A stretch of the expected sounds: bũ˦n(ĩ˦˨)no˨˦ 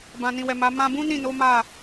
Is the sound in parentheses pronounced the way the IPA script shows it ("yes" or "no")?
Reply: yes